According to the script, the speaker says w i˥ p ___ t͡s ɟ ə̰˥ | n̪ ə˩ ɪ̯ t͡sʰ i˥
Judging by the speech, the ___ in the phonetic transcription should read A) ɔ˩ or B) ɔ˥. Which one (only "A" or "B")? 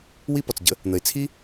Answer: A